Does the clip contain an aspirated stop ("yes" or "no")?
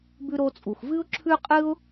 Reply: yes